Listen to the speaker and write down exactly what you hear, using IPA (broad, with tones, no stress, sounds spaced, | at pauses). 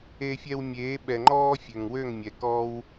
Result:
e˧ fʲ ɛ˧ w mʲ eː˨˦ ɓ ɛ˨ ŋ͡ǃ ɔː˧ fʲ ø˨ ŋ w ø˦˨ ŋ mʲ ɛ˨ k ɔː˧ w